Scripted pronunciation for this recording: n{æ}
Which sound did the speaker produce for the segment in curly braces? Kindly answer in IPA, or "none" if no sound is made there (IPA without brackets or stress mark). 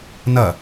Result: ɐ